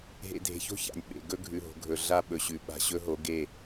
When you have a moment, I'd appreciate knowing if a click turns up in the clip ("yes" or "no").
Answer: no